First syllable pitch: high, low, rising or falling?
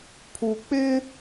low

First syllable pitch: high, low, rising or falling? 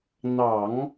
low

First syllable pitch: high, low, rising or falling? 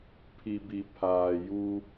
low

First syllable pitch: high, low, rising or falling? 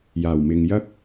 low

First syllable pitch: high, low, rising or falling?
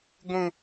high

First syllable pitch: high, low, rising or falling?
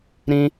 high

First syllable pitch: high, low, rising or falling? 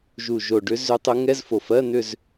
low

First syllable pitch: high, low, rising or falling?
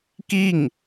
falling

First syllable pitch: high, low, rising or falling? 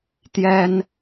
high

